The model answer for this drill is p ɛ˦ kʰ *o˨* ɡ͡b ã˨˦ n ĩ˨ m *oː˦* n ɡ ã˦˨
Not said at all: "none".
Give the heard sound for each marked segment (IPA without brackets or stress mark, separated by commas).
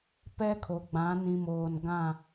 o˨, oː˨